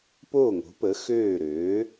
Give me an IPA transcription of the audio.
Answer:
p oː˥˩ ŋ o̤˩˥ p ə˩˥ x øː˥˩ ɾ øː˩˥

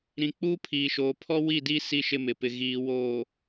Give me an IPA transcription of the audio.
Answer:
ɾ ĩ˨ k͡p uː˦ pʰ iː˨ ʃ oː˨ pʰ ɔ˦ w i˦˨ d i˦ s i˦ ʃ ɪ˦ m ɪ˨ p ɪ˨ ɣ iː˨ w oː˨

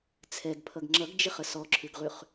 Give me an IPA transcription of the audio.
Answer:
t͡sʰ ɛ ɡ pʰ ʌ ɡ ŋ͡ǁ ʌ ɡ d͡ʒ ɪ χ ə s ɔ ǁʰ ʉ ɡ ʁ ʉ χ

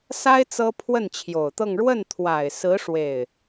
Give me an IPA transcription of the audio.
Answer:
s a˥ ɪ̯ t͡s ɤ˥ pʰ w ə˥˩ n t͡ɕʰ j o˨˩ ʊ̯ t̪ ɤ˥˧ ŋ ɻ w ə˥˩ n t̪ʰ w a˨˩ ɪ̯ s ɹ̩˧˥ ʂ w e˥˩ ɪ̯

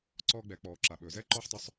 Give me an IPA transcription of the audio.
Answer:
ǀ ɔː˧ ɡ͡b ɛ˩˧ k͡p ɔː˩ ǁ a˩ ɓ ɵː˩ z ɛː˥ ǃ ɔː˥ ħ tˤ ɵ˧˥ sˤ

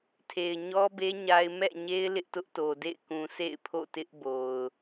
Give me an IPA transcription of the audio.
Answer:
tʰ e˨ ɪ̯ ɲ ɔ˦ b e˦ ɲ a˦ ɪ̯ m ɛ̰˦˨ ɲ e˦ ɪ̯ l ɪ˦ ʔ t ʊ˦ ʔ t o˨ d ḛ˦˨ ɪ̯ k ũ˨ sʰ ḛ˦˨ ɪ̯ pʰ o̰˦˨ t ɪ˦ ʔ b o˨ ʊ̯

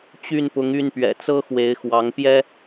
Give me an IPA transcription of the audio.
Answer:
t͡ɕ y˥˨ n p ʊ˨˦ ŋ y˥˨ n p ɥ ɛ̰˨˩ t͡s ɤ˦ x w e˨˦ ɪ̯ x w ɑ˨˦ ŋ p j ɛ˦

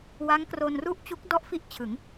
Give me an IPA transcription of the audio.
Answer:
w a˦˥ ŋ k r o˧ n r u˥˩ ʔ t͡ɕ u˦˥ k̚ d ɔ˥˩ ʔ f i˥˩ ʔ t͡ɕʰ ɯ˩˦ ŋ

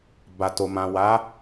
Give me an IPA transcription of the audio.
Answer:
b a˨ t o˨ m ã˨ w a˨˦

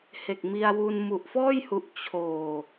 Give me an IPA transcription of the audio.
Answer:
h e˨˩ k̚ m i˧ a̯ w u˧ n m u˨˩ ʔ f ɔː˥˩ j h u˨˩ ʔ t͡ɕʰ oː˨˩

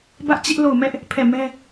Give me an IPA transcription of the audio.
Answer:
b ä˦ ʔ t͡ɕ ɪ˦ ʔ l o˦˨ ʊ̯ m ɛ˦ ʔ | pʰ ɛ˦˨ m ɛ˦

